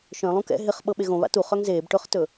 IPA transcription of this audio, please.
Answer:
ʃ œ̃ lˠ ũ k ɛ̰ ɦ ɪ χ ɓ ɤ ɓ e ɣ õ β a̰ t u χ œ ŋ z eː b ʈ ɵ χ t ɵ

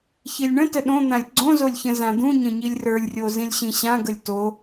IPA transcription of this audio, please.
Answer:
ç i lʲ ɳ ə̃ t ə ɗ õ n̪ ã lʲ ɡ͡ǀ õ z o lʲ ç ə̃ z ã d̪ ũ ɲ ə̃ ɲ i lʲ r ə˞ lʲ rʲ o z ĩ lʲ ɕ ĩ ɕ ã ɡ ə lʲ t o

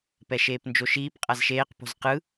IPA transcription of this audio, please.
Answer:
p ɛ ʃ eː p n d͡ʒ o ʃ iː p qʼ a z ʃ eː q p o̤ z q ɯ

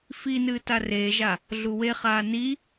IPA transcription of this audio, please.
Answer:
f i n ɨː t a r eː ʒ a | ɮ u w e χ aː n i

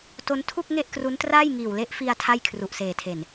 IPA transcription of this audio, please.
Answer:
t o˦˥ n tʰ u˥˩ k̚ ŋ e˥˩ ʔ k r u˦˥ n t r aː˥˩ j ŋ iː˨˩ w l e˦˥ ʔ f i˧ a̯ tʰ a˥˩ j kʰ r u˨˩ ʔ s eː˨˩ tʰ e˨˩ n

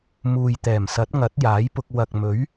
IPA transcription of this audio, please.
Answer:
m uː˨ j t̪ ɛː˨˩ m s ɐ˨˥ t̚ ŋ ɐ˨˥ t̚ j aː˨˥ j p ʊ˧ k̚ w ɐ˨ k̚ m ɵ˨˥ ɥ

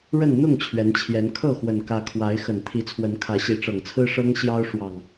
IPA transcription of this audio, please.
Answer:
ɻ ə˥˨ n n̪ ʊ˥˨ ŋ t͡ɕʰ ɥ ɛ˨˦ n t͡ɕʰ j ɛ˨˦ n kʰ ɤ˥˨ x w ə˨˩ n k ä˨˦ kʰ w a˨˦ ɪ̯ x ə˨˩ n t̪ʰ i˨˦ t͡sʰ w ə˨˦ n kʰ ä˨˦ ɕ i˨˦ ʈ͡ʂ ɤ˨˩ ŋ t͡sʰ ɹ̩˦ ʂ ɤ˦ ŋ ɕ j ɑ˦ ʊ̯ ʂ w ɑ˨˩ ŋ

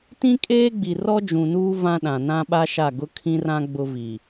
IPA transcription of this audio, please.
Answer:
t ĩ˦ kʼ eː˦ ɡ͡b i˨ r ɔ˦ d͡ʒ ũ˨ n uː˦ v ã˦ ɗ ã˨ n ã˦ ɓ a˦ ʃ a˦˨ ɡ ʊ˦ kʰ ĩ˦ r ã˦ ɡ͡b ʊ˦ v i˨

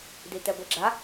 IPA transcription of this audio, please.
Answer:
d̪ i t̪ ɛ ɡʷ i ɡ͡ǁ a

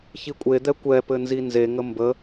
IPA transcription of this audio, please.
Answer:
ç i kʷʼ e d̪ ɛ kʷ ɛ p ɘ n z i n z e ŋ ə m b ə

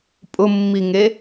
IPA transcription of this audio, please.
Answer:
pʼ ʊ mː i ŋ e

